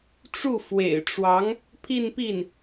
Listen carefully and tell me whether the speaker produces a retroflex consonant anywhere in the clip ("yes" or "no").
yes